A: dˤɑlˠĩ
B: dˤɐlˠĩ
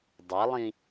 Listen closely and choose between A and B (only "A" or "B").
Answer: B